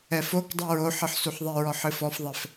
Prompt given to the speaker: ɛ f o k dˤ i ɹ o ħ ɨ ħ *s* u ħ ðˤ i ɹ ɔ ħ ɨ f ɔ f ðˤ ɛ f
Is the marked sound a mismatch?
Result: no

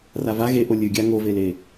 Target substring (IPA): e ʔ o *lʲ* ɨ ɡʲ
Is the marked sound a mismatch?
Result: no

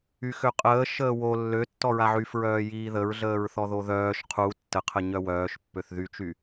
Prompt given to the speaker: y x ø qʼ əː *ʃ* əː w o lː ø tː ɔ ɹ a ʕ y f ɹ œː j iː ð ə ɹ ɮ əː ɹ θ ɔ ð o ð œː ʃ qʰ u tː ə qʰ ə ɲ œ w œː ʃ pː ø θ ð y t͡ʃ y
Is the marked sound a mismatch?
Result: no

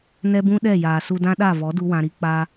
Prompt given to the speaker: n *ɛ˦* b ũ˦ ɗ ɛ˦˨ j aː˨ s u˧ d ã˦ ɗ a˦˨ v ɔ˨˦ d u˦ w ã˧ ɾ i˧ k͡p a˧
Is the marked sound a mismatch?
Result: no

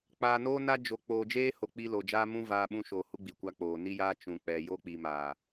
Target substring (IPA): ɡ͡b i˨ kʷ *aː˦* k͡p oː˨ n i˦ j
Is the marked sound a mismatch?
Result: yes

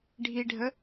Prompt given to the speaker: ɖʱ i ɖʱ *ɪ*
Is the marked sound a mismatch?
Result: yes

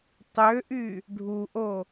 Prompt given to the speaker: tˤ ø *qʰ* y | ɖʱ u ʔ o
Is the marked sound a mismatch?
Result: yes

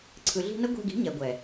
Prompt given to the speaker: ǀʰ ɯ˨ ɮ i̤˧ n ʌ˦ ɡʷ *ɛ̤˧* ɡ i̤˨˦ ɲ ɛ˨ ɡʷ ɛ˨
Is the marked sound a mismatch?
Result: yes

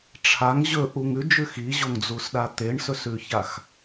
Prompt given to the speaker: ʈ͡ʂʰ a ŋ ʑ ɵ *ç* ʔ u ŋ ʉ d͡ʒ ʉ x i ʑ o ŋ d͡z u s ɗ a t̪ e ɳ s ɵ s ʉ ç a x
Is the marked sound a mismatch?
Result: yes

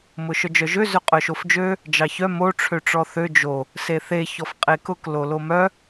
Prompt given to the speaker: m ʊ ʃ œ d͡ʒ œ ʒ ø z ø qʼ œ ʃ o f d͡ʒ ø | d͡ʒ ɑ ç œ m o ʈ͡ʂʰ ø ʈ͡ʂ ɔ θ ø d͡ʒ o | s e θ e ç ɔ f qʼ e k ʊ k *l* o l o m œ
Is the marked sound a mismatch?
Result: no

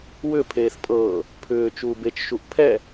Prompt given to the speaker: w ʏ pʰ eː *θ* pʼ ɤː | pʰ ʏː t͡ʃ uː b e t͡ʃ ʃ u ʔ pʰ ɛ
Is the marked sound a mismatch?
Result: no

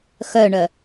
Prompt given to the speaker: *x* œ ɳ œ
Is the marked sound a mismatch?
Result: no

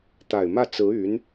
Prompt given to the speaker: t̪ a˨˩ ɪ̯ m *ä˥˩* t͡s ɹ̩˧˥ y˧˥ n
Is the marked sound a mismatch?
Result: no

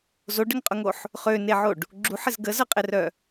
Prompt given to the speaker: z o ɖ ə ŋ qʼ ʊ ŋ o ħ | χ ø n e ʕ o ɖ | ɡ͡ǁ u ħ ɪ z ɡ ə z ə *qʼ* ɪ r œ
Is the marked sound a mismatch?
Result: no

